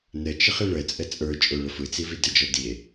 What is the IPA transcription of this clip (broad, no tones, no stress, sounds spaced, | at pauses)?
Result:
n ə t͡ʃ ə χ i ɭ ə t͡sʼ ə t͡sʼ ə˞ t͡ʃʼ o ɭ ə f ɯ t͡s i v i d ə d͡ʒ ɔ d i e̯